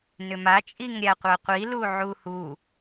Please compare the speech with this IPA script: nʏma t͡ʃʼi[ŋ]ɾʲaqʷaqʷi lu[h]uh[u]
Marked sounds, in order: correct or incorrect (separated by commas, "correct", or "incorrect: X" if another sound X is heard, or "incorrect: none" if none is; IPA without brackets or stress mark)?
correct, incorrect: ʕ, correct